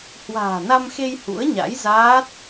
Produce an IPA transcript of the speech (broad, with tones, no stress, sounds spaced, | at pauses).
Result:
h w a̤ː˨˩ n a˧ m x e˧ j h ṵ˧˥ ə̯ ɲ a̰˧˥ j z aː˦˥ t̚